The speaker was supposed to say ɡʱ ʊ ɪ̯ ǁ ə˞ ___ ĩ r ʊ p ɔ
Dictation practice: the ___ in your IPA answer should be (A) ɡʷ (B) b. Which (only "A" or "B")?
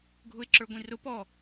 A